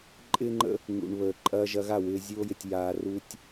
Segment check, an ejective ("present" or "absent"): present